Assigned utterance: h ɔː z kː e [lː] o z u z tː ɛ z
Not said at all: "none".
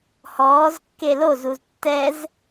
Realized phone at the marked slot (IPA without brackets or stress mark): l